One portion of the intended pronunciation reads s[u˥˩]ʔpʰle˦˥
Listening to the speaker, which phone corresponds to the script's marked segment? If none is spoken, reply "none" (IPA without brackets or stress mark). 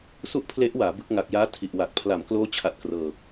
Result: u˥˩